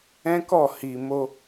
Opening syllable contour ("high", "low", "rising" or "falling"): high